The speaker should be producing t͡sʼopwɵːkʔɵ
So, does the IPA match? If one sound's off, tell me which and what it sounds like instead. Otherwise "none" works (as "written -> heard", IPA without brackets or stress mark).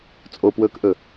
none